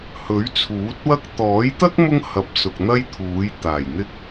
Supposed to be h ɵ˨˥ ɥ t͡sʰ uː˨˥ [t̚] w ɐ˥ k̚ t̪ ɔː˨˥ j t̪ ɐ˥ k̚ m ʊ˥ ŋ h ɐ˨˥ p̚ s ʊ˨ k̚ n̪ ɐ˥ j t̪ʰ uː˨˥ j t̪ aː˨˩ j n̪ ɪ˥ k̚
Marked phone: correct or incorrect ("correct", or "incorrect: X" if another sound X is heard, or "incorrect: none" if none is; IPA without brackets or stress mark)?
correct